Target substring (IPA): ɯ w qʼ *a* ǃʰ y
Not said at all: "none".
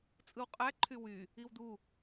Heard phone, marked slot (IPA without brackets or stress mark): æ